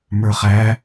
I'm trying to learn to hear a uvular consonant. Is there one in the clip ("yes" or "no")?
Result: yes